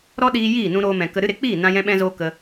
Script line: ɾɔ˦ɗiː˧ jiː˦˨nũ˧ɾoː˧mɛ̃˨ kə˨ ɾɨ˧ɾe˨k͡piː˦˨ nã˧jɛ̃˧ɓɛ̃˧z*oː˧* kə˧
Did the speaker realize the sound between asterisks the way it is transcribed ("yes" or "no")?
yes